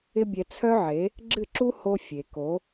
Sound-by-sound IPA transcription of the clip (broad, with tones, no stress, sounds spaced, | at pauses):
ɪ˦ bʲ ɛ˧ t͡sʰ œ˦ ʕ e˨˦ | ɡ͡ǁ ɨ˦˨ ǁ u˦ h o˦ fʲ e˨ k o˨˦